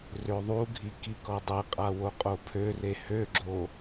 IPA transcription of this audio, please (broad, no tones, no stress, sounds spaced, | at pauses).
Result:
r ø ðˤ u ɡʱ i k i k ɔ dˤ e qʼ a w o qʼ o pʰ ø r e h ø ɡ͡ǁ o